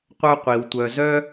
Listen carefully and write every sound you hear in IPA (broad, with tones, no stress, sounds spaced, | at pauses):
qʷ œ˦ qʷ i˩ w tʷ œ˨ z œ˦